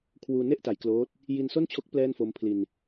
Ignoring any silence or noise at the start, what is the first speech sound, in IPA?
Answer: kʰ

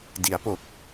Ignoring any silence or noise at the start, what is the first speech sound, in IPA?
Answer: d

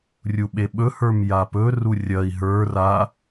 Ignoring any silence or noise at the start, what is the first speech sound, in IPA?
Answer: rʲ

